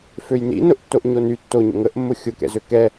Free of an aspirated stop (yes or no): yes